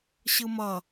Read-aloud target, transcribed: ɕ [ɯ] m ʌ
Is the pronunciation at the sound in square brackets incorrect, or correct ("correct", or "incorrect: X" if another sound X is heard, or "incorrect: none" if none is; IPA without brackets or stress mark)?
correct